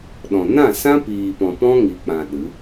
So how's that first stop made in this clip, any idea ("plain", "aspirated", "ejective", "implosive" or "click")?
implosive